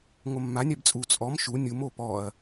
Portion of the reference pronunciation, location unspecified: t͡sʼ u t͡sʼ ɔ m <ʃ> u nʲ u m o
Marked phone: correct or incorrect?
correct